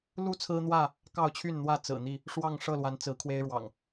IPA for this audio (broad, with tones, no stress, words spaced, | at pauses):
lu˥˨t͡sʰɹ̩˦n̪wä˥˨ | kɑ˥˨ʊ̯t͡ɕʰy˥˨nn̪wä˥˨ t͡sɹ̩˨˩n̪i˥˨ | ʂwɑ˥˨ŋʂɤ˥˨lwa˨˦n t͡sɹ̩˨˦kʰwe˦ɪ̯ɻwɑ̰˨˩ŋ